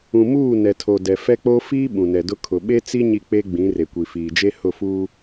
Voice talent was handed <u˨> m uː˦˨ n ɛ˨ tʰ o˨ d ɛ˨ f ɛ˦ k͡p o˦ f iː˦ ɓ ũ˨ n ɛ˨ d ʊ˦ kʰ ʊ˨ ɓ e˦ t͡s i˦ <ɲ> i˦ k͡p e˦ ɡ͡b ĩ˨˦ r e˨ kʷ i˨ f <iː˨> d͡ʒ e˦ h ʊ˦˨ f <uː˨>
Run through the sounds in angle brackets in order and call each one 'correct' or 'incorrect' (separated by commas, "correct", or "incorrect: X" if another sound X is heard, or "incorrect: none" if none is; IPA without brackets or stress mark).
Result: incorrect: ũ˨, correct, correct, incorrect: uː˦